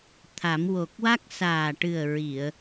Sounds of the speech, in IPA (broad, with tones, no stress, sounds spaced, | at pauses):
t̪ʰ a˨˩˦ m w o˨˩ k̚ w a˦˥ k̚ s aː˨˩ ʈ ɨ˨˩ ə̯ ɹ i˨˩˨ ə̯